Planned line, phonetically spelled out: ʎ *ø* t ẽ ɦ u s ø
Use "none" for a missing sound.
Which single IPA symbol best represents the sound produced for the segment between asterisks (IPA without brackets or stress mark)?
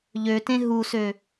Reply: ø